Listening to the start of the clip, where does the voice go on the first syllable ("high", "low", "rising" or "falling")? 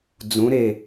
rising